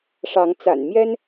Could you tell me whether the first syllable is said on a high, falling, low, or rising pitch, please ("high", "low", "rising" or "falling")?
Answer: rising